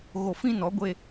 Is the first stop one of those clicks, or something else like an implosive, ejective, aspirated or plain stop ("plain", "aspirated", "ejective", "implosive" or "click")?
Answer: plain